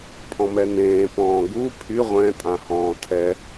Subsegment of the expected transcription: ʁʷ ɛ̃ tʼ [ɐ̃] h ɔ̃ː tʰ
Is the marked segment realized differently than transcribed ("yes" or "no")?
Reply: yes